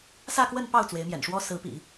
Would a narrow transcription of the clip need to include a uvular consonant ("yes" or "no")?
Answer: no